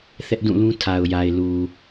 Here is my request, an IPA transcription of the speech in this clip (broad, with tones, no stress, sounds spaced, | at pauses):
θ ɛ˦ ʔ d ũ˦˨ l ũ˦ tʰ a˨ ʊ̯ j a˨ ɪ̯ l u˨